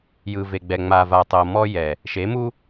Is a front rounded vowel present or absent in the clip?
absent